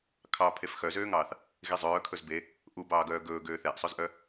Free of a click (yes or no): yes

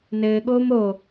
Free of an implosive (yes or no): no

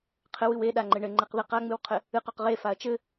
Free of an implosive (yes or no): no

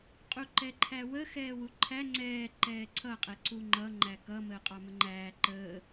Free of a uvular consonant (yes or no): no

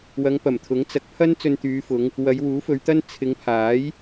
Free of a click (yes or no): yes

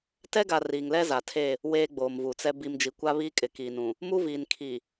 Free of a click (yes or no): yes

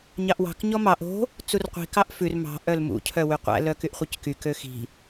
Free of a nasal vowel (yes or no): yes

